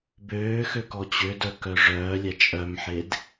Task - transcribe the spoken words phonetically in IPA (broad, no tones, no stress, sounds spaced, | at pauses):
b øː x ø k ɔ t͡ɕ ø d œ k œ ʐ œː lʲ æ t͡ʃʼ œ m ħ e d